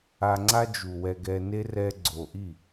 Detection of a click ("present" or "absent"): present